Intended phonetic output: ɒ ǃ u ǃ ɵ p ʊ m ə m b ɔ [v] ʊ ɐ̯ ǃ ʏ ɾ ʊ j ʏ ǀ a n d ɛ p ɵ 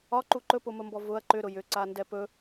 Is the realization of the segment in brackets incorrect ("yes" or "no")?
no